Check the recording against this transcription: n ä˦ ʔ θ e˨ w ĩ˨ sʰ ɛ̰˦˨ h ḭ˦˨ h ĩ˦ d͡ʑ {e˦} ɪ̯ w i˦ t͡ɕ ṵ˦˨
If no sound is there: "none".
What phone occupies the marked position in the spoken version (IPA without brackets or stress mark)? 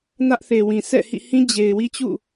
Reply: e˨